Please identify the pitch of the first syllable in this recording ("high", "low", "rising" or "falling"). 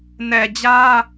low